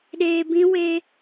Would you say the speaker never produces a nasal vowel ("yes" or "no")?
no